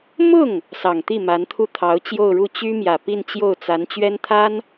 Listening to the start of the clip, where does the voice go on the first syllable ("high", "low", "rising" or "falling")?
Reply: falling